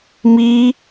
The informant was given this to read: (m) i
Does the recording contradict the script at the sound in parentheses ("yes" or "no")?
no